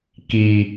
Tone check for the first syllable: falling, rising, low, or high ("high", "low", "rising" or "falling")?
low